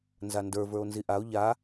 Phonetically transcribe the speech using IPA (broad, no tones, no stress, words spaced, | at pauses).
nzandə˞ və˞o̯nziʔao̯ ʎa